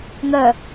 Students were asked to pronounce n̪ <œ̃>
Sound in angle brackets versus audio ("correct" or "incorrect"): incorrect